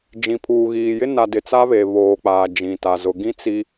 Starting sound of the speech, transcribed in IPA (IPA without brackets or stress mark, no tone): d͡ʒ